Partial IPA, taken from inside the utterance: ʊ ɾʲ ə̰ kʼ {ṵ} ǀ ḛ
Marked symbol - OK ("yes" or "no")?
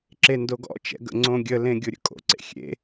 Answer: no